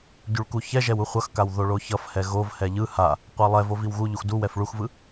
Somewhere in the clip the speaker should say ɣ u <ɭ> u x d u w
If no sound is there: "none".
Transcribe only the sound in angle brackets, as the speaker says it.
ʎ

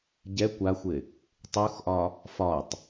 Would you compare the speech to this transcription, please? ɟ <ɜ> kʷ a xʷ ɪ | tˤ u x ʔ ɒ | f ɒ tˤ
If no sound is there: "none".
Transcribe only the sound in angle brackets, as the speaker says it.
ɛ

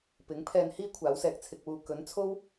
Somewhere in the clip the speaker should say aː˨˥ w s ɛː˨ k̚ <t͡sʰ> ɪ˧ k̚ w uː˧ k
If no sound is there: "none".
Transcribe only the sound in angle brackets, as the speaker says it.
t͡sʰ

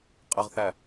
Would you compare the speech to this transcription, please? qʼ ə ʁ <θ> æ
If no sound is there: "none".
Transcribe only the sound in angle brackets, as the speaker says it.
θ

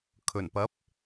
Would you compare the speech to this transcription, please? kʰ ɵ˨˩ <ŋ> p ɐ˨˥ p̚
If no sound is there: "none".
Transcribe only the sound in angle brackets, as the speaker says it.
n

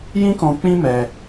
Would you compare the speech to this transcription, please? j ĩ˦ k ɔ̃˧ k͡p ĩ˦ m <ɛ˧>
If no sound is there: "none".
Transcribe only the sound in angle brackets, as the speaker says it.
ɛ˧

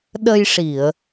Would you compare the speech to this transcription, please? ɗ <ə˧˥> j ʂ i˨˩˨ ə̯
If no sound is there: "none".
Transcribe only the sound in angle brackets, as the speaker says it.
ə˧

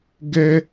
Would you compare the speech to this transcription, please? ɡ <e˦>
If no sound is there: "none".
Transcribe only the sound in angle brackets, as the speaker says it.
ɛ˦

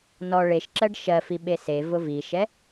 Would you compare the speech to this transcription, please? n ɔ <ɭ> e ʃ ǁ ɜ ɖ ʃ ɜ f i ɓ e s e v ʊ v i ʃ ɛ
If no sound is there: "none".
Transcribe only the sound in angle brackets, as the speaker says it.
ɭ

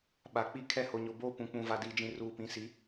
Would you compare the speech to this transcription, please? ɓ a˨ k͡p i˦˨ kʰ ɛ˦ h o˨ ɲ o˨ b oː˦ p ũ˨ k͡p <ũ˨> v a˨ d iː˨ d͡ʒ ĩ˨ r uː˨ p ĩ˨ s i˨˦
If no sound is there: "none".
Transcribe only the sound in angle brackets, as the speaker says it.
ũ˨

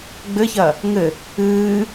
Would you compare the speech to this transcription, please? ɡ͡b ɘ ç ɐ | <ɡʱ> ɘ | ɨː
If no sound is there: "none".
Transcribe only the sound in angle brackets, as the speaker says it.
ŋ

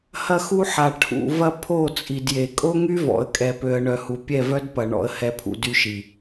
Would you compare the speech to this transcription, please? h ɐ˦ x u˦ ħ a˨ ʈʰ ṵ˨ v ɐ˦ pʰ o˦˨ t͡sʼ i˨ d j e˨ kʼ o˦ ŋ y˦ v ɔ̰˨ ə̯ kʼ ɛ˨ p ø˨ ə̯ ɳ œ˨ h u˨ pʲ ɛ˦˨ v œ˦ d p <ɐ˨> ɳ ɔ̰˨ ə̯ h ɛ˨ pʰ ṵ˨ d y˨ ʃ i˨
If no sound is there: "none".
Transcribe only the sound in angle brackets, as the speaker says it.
ɐ˨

